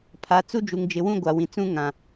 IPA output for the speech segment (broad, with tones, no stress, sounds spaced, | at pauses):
pʰ a˨ t͡s u˦ d͡ʒ u˨ ŋ d͡ʒ ɪ˨ w ũ˦ ɡʷ a˨ w ĩ˨ t͡s ũ˦ ŋ ã˨